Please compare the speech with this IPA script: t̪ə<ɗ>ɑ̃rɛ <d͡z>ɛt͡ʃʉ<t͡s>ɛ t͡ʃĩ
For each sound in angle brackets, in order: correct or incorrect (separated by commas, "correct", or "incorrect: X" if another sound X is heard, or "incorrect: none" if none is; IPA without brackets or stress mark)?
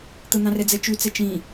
incorrect: n̪, correct, correct